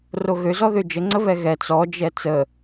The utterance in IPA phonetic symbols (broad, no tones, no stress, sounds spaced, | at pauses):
r o ɣ ø z ɔ ð ø d͡ʒ ə ŋ͡ǀ ə β ɛ ɣ ɛ t͡s ɔ d͡ʒ ɛ t͡s ə